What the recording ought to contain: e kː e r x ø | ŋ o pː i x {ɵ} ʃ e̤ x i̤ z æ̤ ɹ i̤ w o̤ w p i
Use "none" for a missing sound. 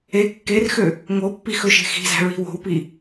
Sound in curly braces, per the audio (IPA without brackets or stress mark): ɵ